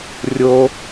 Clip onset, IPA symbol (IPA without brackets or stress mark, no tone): rʲ